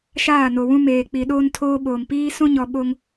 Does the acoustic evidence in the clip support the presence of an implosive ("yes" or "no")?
yes